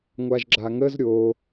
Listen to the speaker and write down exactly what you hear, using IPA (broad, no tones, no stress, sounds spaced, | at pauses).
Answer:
ŋʷ a ʒ ɡ͡ǁ a ŋ ə z ɾʲ o